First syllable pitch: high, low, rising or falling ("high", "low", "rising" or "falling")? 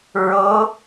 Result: rising